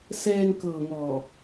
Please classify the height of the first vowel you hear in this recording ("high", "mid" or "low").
mid